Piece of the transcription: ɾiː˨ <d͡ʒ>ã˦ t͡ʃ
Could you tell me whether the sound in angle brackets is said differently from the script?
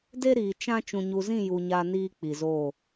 yes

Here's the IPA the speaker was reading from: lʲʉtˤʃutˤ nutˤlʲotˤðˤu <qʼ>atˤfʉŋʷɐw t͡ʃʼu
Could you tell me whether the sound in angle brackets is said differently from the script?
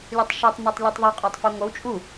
no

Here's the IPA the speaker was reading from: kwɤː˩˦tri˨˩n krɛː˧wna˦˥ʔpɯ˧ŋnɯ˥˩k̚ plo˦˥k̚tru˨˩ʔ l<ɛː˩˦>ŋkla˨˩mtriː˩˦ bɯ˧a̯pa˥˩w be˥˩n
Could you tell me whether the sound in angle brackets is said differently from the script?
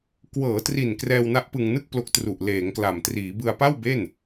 yes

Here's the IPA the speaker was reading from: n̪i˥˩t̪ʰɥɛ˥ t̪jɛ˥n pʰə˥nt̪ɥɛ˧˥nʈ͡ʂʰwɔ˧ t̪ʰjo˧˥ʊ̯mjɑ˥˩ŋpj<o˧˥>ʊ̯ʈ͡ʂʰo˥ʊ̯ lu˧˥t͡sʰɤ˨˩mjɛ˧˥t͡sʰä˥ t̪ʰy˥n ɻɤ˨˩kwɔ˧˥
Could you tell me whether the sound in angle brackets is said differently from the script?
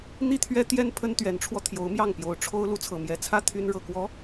no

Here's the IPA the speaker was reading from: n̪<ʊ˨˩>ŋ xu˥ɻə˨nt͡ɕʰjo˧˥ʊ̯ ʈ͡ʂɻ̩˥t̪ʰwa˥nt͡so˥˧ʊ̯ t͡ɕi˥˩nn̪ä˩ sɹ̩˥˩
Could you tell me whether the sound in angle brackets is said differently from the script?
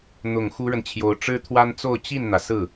no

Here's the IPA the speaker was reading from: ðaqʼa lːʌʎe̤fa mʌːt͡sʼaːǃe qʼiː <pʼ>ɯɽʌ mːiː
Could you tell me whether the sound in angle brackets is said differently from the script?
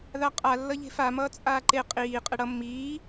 yes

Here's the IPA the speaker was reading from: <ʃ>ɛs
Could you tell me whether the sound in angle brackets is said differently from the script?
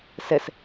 yes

